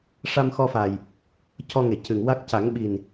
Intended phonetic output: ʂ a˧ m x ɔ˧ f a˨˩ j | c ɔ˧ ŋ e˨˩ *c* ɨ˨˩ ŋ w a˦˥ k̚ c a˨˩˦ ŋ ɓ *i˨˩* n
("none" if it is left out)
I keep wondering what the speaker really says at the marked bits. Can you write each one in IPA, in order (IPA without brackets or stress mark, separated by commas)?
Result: c, i˨˩